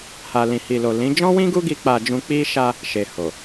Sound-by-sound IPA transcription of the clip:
h a˨ l ĩ˨ h i˨ l o˨ l ĩ˨˦ d͡ʒ ɔ̃˦ w ĩ˦ ɡ u˦ ɡ i˧ k͡p a˧ d͡ʒ ũ˧ k͡p i˦ ʃ a˧ | ʃ e˨ h o˨

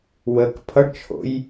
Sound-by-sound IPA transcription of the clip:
w ə k pʰ ʌ ɖ t͡ʃʰ o̰ j

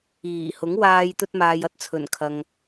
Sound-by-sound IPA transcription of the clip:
iː˨˩ h ʊ˨˥ ŋ w aː˧ j t̪ ɵ˧ t̚ m aː˨ j ɐ˧ t̚ t͡sʰ ɵ˨˩ n kʰ ɐ˨ ŋ

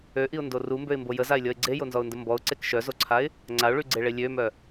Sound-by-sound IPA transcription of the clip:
ø ʔ i ʊ̯ n d o r u m b ø ɪ̯ m b o j ə z a ɪ̯ lʲ ɔ ɪ̯ ɡ͡ǀ e j o n z ɔ ʊ̯ n d ə m b ɔ ʊ̯ ǀ e k ʃ œ z o ǀʰ a ɪ̯ | ŋ͡ǀ a ʊ̯ ɭ y ɡ͡ǀ e ɭ e lʲ ø m œ

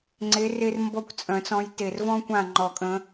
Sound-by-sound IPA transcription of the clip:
ŋ͡ǀ e˨˦ r e˥ r m b ɔ˦˨ kʷ t͡sʼ œ̃˨˩˦ t͡s ɔ̃˨˦ j t e˨˩ r v ɔ̃˥ kʷ ã˦˨ ŋ͡ǃ ɔ˨˩˦ kʼ ə̃˨˦

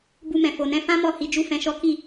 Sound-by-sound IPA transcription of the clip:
b u˧ m ɛ̃˨ f o˨ n ɛ̃˨˦ f ã˦ m ɔ˦˨ h i˧ d͡ʒ u˦ f ɛ̃˧ ʃ ɔ˦ k i˦˨

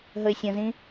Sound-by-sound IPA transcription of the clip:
ɦ ə ɪ̯ sʲ ə̃ z ĩ

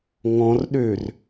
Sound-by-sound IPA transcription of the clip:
ŋ ɔ̃ r ɗ ø r

